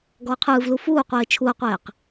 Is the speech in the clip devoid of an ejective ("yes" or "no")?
yes